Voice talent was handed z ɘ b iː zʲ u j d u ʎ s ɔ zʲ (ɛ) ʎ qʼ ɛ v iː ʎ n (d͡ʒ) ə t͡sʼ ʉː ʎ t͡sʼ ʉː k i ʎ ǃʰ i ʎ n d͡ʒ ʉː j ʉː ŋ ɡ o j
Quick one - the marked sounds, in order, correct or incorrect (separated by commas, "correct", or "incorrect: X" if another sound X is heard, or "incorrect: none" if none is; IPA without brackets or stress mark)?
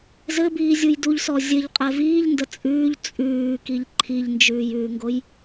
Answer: incorrect: ɘ, incorrect: d